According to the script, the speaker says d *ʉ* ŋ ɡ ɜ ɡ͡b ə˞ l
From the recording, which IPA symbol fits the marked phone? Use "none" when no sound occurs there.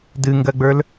ɨ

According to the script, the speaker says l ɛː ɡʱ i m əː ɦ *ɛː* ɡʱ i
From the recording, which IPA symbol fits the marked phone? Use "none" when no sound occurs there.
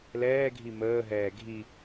ɛː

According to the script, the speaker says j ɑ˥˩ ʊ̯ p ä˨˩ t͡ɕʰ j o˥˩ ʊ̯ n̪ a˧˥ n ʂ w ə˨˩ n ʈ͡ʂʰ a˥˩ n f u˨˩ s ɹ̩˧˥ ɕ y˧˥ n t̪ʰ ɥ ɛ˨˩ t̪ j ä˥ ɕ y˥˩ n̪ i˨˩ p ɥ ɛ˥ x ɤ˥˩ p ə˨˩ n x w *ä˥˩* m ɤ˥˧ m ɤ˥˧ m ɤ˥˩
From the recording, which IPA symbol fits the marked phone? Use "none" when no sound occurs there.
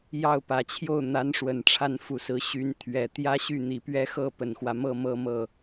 ä˦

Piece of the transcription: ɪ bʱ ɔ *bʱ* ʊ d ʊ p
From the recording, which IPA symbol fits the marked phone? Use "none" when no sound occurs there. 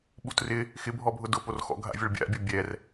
bʱ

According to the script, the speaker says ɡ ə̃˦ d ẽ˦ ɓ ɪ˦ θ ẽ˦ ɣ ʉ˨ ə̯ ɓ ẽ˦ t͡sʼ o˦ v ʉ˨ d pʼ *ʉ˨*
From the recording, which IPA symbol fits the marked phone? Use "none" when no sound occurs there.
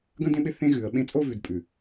ʉ˨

